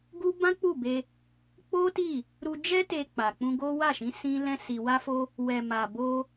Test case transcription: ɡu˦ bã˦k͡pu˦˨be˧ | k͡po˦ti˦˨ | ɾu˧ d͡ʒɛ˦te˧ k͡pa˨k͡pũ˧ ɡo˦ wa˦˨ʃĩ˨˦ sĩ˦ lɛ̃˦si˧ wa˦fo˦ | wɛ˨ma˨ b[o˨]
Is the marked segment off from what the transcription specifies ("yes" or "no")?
yes